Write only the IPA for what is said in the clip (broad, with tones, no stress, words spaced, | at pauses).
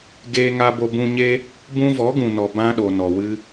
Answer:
ɡeː˧ŋa˧bo˧bũ˧ ɲe˦ | bũ˦ vɔ˨˦ɡũ˨nɔ˨ bã˦ɗo˨nɔ˨ wɨ˧